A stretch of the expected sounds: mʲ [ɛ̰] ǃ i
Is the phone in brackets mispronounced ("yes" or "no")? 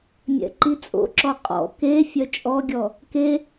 no